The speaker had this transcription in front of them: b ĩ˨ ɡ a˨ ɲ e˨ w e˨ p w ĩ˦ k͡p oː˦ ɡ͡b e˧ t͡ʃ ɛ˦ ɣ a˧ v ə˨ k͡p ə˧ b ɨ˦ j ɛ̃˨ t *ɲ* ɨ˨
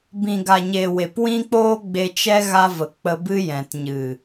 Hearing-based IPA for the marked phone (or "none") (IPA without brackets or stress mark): ɲ